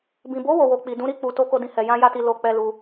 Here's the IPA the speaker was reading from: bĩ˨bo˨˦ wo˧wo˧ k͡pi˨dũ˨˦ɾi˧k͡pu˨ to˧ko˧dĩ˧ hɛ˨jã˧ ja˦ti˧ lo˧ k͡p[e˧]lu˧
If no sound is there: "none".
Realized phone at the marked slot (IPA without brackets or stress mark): ɛ˧